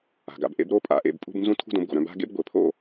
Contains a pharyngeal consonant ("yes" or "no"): no